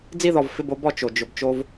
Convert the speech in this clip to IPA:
d͡z i˦˨ ð ɔ˨ v f ɪ˦˨ b o˦ b ɔ˨ t͡ʃ o˨ d͡ʒ ʊ˨ b t͡ʃ o˦ v

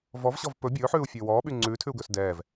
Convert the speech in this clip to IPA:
v ɔ v ɕ ɔ v p ɵ bʲ ɵː ħ ʉː u̯ fʲ ɵː w ɔː ɓ y ŋ͡ǀ ʉː tʰ ʉ u̯ ɡ ɵː s d ɛː v

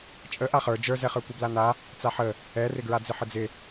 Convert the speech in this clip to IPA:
t͡ʃʼ ə ʔ a χ ə˞ d͡ʒ ə˞ z ɛ χ ə˞ kʷ ɪ b l a n a | t͡s a ħ ə | ɛ r ɪ ɡ ɹ a d͡z ɪ ħ ə d͡z ɪ

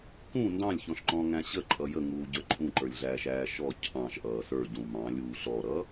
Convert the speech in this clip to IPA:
k ũ n d ɑ̃ lʲ ç ɔ̃ ʃ ǃ ɔ̃ ŋ æ̃ ɕ ə ǃʼ ʌ j ə ŋ uː ɟ ə˞ ǃʼ ũ ǃ ə˞ lʲ ɮ æː ʃ æː ʃ ɔ cʰ ɑ̃ ʃ ʔ ʌː s ə˞ ɟ ũ m ɑ̃ lʲ uː ɬ ɔ ɾ ʌː

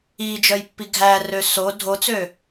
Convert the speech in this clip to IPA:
i d͡ʒ œ j pː i ɡʱ æ r ø s o dʱ o t͡s ø

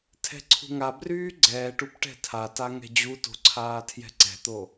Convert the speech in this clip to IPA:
tʰ ɛ̤ ǀʰ ṳ ŋ a b r yː ɡ͡ǀ ɛː ʈ u p ʈ ɛ̤ tʰ a t a ŋ ɛ̤ d͡ʑ u t o̤ ǀʰ aː tʰ j ɛ̤ ǀ ɛ̤ t̪ o

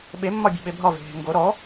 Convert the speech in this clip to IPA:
ɓ e mː ɒ bʲ e̤ ɓ e bʱ ɒ v e̤ ɦ e̤ ŋ ɡ o ɾ ɔ

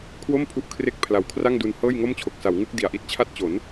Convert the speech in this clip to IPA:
kʰ w o˥˩ m pʰ u˦˥ ʔ kʰ r e˥˩ k̚ pʰ l a˨˩ w kʰ r a˥˩ ŋ d u˧ n h ɤː˥˩ j ŋ o˥˩ m t͡ɕʰ o˨˩ k̚ s a˩˦ w ŋ ɯ˦˥ k̚ d i˨˩ a̯ ʔ i˦˥ t̚ t͡ɕʰ a˥˩ t̚ t͡ɕ o˩˦ n

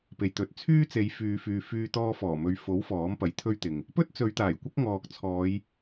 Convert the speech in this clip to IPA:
p e˨ j t̪ ɵ˨˥ t̚ t͡sʰ yː˥ t͡s e˨˧ j f yː˨ f yː˨ f yː˧ t̪ ɔː˧ f ɔː˨˩ m ɵ˨˧ ɥ f o˨˥ w f ɔː˨˥ m p ɐ˨˥ j t̪ʰ ɵ˥ ɥ t̪ ɪ˨ ŋ | p ɵ˥ t̚ t͡s ɵ˨˧ ɥ t̪ aː˨˩ j kʷ ɐ˥ k̚ ŋ ɔː˨ k̚ t͡sʰ ɔː˨˧ j

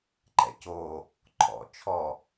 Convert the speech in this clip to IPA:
ǃ ɛ̰ c o | ǃʰ ɔ̰ t͡ʃʰ ɔ

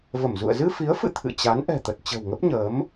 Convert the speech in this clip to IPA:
v ə˧˩ m z ṵ˧˨ ə̯ z ɨ˧ f i˨˦ ə̯ f ɨ̰˧˨ t̪ʰ ɨ̰˧˨ t͡ɕ a˨˦ n ʔ ɛ̤˨˩ t̪ ə˨˩ t̚ t͡ɕ ə̤˨˩ w ŋ ə˦˥ p̚ ɲ əː˨˦ m

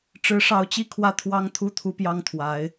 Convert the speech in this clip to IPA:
ʈ͡ʂ ɻ̩˧˥ ʂ ɑ˧˥ ʊ̯ t͡ɕ i˥˧ kʰ w ä˥˩ t̪ʰ w ɑ˥ ŋ t̪ʰ u˥˩ t̪ʰ u˥ p j ɑ˥ ŋ t̪ʰ w a˧˥ ɪ̯

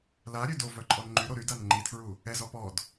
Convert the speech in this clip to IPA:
l a ɾʲ ø d o v œ ǃʼ ɔ n ŋ͡ǃ y ɾ o ɾ y d a n ŋ͡ǃ i tʰ ɹ u | ɛ z ɔ p ɔ d

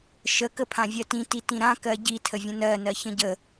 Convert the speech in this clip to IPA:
ʃ ə k ə pʰ ã vʲ ɜ t ĩ t i t ĩ ɾ ã k ɜ ɟ i tʰ ə vʲ ə̃ n ɜ n ɜ ç ə̃ ɟ ə

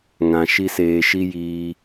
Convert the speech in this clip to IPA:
ŋ ã˧ ʃ i˦ s eː˧ ʃ i˦ j iː˦

